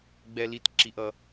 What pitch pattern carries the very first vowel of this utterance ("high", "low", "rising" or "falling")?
high